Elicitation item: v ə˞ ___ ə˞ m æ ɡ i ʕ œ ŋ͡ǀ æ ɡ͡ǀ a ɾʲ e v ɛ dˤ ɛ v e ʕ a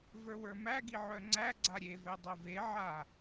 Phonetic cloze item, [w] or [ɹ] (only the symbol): w